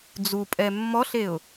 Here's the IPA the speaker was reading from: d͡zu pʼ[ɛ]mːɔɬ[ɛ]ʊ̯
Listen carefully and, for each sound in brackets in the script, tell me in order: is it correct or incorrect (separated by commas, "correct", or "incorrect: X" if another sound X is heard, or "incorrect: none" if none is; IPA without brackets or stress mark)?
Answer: correct, incorrect: e